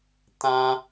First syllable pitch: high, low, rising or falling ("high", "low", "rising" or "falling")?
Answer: high